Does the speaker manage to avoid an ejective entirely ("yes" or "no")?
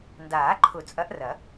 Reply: no